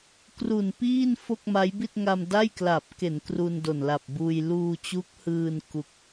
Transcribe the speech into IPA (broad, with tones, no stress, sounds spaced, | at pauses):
k r u˨˩ n p iː˥˩ n f o˥˩ k̚ m a˦˥ j b i˥˩ t̚ ŋ a˧ m d a˥˩ j k l a˨˩ p̚ k e˩˦ n k r u˧ n d o˨˩ n l a˨˩ p̚ b uː˧ j l uː˧ t͡ɕ u˦˥ k̚ h ɯː˧ n k u˦˥ k̚